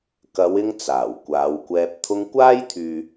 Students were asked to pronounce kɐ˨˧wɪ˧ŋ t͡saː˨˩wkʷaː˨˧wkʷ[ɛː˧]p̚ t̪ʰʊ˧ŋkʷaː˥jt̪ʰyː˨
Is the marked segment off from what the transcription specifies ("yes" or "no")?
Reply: no